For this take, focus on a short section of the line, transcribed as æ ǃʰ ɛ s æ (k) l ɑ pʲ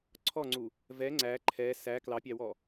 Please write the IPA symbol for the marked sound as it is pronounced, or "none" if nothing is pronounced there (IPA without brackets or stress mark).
k